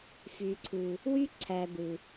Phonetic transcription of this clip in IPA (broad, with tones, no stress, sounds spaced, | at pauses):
f y˨ ǀʰ ɯ˨ | w y˥ ǀʰ æ˨ d̪ ɯ˩